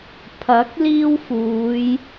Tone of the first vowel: rising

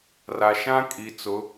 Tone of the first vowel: low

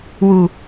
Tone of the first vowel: low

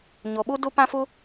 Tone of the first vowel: low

